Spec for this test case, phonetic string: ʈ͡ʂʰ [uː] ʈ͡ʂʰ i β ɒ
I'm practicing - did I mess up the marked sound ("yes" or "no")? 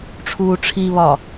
no